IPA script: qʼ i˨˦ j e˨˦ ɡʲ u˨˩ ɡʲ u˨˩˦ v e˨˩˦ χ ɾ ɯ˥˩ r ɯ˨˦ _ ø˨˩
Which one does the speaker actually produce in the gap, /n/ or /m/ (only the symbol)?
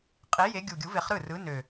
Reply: n